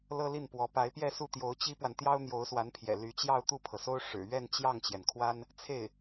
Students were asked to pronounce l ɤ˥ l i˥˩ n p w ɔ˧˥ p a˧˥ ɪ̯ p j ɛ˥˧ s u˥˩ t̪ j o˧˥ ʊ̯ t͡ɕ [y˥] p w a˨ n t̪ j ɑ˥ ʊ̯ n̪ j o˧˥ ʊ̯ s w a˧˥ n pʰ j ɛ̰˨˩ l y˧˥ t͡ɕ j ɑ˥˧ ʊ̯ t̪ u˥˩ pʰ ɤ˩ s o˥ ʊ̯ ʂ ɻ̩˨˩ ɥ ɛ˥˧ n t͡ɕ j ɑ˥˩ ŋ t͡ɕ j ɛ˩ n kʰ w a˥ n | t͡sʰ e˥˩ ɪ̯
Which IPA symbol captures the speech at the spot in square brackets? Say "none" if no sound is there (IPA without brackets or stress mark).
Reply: i˥